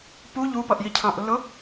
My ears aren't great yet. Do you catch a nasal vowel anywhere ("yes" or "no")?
yes